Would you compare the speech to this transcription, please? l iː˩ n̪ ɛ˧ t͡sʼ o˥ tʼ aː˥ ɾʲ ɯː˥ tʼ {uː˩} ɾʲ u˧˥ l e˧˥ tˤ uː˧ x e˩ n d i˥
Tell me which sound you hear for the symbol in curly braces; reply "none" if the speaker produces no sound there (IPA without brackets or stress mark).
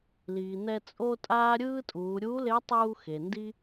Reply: uː˩˧